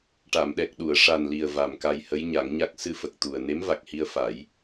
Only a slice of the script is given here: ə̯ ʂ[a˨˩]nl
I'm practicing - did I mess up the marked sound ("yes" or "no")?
no